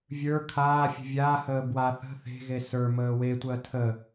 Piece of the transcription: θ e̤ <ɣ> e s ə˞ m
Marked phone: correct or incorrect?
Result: correct